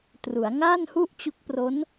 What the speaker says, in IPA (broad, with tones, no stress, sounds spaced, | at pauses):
t r u˩˦ a̯ ŋ aː˥˩ n h u˥˩ ʔ t͡ɕ u˦˥ k̚ p r o˦˥ n